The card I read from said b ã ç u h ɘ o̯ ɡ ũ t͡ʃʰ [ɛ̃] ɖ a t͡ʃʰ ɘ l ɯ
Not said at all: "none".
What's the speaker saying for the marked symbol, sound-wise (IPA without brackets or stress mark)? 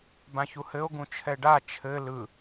ɛ